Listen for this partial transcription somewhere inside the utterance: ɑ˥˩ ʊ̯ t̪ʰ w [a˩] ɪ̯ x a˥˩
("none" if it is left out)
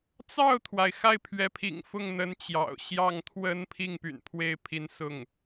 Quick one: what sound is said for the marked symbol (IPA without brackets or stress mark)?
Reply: a˩